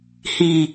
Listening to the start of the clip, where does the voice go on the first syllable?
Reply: low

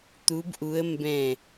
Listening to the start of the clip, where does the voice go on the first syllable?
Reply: rising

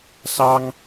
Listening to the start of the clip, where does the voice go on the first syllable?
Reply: high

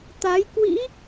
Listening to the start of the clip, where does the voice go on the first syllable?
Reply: rising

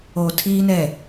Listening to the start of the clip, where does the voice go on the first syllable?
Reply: low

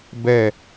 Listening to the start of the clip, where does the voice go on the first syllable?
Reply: falling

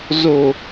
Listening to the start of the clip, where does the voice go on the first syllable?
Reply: low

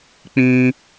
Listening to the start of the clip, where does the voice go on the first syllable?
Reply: high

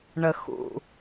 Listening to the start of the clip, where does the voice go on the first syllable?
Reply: low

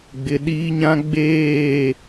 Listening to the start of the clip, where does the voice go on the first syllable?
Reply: low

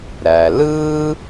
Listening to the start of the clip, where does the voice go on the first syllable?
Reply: low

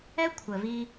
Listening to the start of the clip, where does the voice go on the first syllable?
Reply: high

